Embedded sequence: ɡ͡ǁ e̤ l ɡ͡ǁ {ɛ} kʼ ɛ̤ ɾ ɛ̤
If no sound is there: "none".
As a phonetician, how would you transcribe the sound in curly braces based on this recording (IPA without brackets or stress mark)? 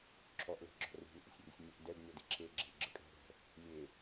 ə